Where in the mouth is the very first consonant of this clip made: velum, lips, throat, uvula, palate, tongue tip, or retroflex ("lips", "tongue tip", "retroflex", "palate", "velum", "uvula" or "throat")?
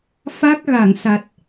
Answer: lips